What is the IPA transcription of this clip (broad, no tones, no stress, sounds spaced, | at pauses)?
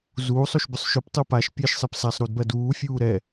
z uː sˤ o ʃ b ʏ sˤ ʃ ɵ p tˤ u p a ʃ pʲ ɛ ʃ sˤ ɛ p s a sˤ ɾ u d b ɜ d uː fʲ uː ɾ ɛ